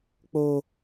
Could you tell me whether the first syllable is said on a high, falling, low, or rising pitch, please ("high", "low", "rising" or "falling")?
high